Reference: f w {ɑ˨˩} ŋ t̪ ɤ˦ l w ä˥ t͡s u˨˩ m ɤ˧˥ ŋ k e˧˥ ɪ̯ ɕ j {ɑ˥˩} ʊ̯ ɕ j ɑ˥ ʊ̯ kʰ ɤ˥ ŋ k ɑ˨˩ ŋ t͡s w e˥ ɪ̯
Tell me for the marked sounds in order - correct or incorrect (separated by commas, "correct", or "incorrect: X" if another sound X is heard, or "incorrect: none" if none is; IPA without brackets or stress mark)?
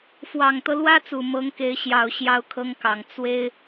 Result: correct, incorrect: ɑ˨˩